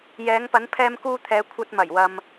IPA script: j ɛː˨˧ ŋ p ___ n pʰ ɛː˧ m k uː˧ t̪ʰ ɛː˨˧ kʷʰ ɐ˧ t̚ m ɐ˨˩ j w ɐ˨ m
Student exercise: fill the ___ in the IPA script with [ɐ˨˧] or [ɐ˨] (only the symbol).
ɐ˨˧